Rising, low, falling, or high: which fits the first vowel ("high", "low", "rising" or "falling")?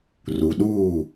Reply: low